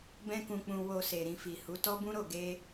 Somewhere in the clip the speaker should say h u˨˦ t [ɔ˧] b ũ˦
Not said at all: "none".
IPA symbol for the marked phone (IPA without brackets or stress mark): ɔ˦